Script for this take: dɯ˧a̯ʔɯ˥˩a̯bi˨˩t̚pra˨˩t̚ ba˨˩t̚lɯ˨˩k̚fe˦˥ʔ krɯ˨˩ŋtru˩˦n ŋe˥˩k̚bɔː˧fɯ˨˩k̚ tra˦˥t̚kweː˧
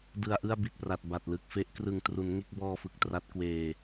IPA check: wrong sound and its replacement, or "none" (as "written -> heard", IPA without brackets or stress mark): none